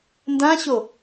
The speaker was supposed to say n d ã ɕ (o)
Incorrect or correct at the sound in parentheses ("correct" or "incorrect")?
correct